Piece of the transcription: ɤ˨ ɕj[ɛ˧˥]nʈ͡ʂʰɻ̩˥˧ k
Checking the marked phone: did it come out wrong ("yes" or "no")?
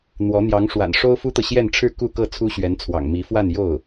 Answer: yes